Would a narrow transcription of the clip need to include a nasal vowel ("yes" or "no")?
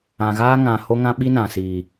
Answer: yes